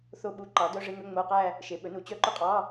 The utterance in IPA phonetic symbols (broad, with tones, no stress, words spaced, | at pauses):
θo˥˧ɓu˧˥˧ ǃɑ˩˥dœ˧˥˧ʐe˧˥˧ŋɵ˧˥˧ ŋ͡mo˧˥˧qæ˥˧ | ʃe˩˥ɓɵ˩˥nu˩˥ t͡ɕœ˧˥˧ǃɵ˥˧qʼɑ˧˥˧